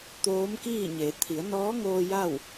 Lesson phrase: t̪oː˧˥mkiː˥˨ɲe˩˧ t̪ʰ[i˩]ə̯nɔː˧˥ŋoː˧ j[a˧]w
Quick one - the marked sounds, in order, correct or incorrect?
incorrect: i˩˧, incorrect: a˥˨

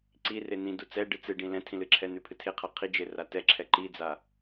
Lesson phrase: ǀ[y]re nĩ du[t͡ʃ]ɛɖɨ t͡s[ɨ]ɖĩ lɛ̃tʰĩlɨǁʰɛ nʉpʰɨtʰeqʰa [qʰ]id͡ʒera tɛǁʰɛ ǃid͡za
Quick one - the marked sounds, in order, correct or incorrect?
incorrect: i, incorrect: t͡s, correct, correct

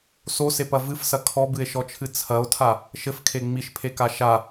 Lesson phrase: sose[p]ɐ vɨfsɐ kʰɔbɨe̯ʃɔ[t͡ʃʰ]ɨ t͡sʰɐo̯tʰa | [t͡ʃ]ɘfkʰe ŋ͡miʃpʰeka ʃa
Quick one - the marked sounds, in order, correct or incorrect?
correct, correct, incorrect: ʃ

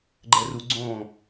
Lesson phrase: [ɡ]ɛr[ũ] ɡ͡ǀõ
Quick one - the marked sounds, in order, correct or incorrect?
incorrect: ɡ͡ǃ, incorrect: u

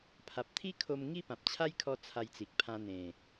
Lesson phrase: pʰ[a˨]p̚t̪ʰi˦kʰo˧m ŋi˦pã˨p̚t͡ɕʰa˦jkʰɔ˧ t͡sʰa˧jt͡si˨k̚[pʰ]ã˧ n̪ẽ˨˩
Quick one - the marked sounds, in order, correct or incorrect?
correct, correct

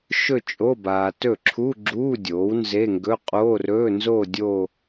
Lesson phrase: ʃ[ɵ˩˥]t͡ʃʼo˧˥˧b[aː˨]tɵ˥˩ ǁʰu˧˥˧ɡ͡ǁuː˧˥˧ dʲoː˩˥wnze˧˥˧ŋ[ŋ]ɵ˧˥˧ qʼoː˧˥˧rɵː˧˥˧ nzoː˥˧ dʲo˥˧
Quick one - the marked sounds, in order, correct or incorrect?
incorrect: ɵ˥˧, correct, incorrect: ɡ

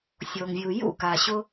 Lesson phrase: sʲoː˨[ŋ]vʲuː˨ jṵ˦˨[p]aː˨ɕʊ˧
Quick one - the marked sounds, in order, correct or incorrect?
correct, incorrect: k

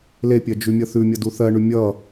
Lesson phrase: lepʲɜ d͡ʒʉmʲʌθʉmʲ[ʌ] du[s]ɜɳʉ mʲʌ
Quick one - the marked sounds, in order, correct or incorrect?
correct, incorrect: θ

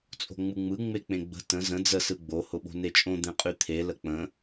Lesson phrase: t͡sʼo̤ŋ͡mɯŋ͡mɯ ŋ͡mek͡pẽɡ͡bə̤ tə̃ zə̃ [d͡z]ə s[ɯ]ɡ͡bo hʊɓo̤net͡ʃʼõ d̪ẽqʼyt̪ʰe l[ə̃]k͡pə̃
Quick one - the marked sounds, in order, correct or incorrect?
correct, correct, incorrect: ə

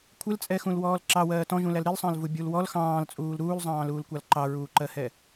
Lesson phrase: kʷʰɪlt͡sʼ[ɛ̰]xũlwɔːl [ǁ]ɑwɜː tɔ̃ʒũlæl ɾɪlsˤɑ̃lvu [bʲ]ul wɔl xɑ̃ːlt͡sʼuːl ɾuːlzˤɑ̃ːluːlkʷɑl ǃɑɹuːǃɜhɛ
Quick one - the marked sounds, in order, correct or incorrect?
incorrect: ɛ, correct, correct

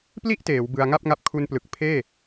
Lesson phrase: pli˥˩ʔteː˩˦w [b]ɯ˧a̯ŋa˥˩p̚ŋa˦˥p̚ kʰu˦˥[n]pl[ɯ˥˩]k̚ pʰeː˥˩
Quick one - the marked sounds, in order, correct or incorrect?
correct, correct, incorrect: ɯ˨˩

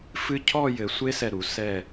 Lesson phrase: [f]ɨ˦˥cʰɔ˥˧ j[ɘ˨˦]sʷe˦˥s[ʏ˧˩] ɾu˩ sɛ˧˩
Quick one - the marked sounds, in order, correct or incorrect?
correct, correct, incorrect: ɛ˧˩

